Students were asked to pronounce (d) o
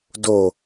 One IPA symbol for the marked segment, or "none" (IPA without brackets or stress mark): d